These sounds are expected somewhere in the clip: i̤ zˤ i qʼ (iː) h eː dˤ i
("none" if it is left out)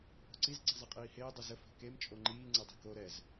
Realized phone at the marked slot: iː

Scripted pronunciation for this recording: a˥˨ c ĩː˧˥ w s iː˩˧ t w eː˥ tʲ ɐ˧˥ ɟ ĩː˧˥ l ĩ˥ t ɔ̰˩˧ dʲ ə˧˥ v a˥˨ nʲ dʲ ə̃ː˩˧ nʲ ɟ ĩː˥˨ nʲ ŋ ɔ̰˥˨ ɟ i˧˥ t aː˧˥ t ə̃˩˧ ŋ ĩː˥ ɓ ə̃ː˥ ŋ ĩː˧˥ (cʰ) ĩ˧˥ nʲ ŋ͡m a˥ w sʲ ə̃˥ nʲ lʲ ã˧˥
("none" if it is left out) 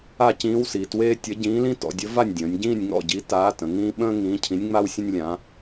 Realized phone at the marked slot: cʰ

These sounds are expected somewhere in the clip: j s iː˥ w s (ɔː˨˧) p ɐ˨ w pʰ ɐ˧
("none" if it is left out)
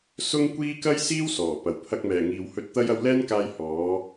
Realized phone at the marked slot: ɔː˨˩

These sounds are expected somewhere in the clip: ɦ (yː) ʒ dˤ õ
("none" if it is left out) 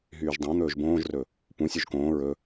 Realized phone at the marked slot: yː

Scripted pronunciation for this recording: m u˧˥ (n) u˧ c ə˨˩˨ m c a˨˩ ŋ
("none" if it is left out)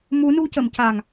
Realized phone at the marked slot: n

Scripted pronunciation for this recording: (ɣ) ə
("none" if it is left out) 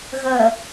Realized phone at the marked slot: ɣ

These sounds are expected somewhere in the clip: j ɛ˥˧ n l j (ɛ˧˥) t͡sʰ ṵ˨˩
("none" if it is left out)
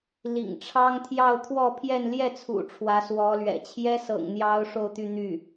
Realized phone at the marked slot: ɛ˥˩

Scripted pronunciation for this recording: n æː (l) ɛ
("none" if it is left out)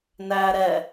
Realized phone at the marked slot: ɾ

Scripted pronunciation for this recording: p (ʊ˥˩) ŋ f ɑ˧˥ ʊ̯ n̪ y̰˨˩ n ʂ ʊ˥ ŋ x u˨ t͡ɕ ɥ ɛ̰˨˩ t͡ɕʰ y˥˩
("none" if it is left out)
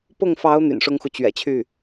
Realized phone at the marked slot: ʊ˥˩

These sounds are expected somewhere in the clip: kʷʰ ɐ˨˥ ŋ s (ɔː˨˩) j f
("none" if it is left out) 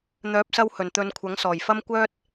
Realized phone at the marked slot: ɔː˨˩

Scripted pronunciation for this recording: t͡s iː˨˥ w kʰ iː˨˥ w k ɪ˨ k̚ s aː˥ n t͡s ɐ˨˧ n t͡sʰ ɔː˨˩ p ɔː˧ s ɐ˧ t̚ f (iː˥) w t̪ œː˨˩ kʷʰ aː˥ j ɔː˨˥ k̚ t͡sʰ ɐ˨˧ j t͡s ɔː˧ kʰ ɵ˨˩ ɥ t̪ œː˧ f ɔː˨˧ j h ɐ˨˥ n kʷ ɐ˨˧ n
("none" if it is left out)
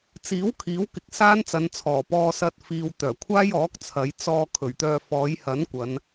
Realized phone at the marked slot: iː˨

